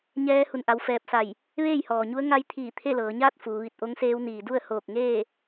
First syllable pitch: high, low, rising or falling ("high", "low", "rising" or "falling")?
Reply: rising